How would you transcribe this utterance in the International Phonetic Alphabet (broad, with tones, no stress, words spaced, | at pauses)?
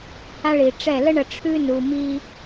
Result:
ha˦ɭi˨ʈ͡ʂɛ˦˨ lə˦ɳə˨ ʈ͡ʂʰʉ˦nu˨mi˦